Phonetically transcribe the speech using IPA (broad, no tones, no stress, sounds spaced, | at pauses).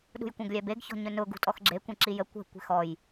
ɗ ṳ j kʷ ɛ̃ ɡ lʲ ɛ b e ɡ ç ɔ̤ ɲ ɵ n ʊ ɡ ṳ tʼ ɔ x ɡ͡ǁ e kʷ ẽ ǁ i j ə kʷ ɛ̤ kʷ e̤ x ɔ j